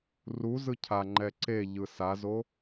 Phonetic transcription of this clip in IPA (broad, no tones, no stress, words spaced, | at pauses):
ruzɯ cʰaŋ͡ǃɛ ǀe ʎɯsazo